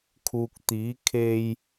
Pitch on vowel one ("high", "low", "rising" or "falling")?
low